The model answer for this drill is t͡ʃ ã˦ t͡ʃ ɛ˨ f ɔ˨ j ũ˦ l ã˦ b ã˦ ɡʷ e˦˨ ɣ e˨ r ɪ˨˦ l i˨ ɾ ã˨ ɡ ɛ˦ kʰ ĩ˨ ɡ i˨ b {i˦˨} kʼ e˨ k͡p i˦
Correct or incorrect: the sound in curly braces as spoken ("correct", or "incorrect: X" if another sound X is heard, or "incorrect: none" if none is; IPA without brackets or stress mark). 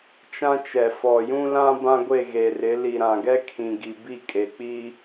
correct